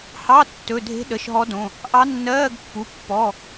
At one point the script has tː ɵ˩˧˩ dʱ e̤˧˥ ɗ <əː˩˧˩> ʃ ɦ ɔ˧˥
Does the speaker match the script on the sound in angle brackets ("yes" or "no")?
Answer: no